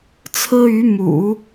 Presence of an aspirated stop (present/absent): present